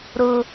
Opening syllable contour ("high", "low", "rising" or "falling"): high